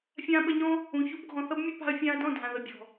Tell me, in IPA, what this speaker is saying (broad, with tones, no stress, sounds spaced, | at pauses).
fʲ ãː˧ ɓ ə˧ ɲ ɔ̃˦ | ũ˨ ç u˧ b ɡʱ ɔ̃˨ θ ʌ˦ b mʲ ə˦ p a̤˧ ɐ̯ fʲ ãː˧ ɐ̯ d ɔ̃˦˨ dʱ ã˨ ð ə˨ bʲ ɔ̤˨